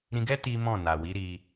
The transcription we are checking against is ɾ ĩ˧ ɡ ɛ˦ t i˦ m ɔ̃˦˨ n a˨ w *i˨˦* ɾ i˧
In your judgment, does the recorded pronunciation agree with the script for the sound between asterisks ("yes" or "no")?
yes